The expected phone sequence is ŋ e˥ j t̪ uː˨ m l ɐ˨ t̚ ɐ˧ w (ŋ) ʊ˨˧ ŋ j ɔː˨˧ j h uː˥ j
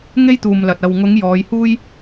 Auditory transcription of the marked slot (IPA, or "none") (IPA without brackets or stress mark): ŋ